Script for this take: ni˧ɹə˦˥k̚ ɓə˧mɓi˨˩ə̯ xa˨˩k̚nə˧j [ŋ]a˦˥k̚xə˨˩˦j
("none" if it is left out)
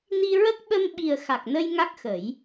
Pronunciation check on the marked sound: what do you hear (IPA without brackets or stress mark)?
ŋ